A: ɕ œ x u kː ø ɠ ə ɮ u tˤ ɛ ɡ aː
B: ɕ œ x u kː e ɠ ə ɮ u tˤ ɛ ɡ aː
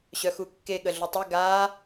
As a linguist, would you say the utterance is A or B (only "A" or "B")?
B